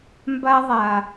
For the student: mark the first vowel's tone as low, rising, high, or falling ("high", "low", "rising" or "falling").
high